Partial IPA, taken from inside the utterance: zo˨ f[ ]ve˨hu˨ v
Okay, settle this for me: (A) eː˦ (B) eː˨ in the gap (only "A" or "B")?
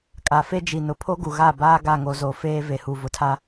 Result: A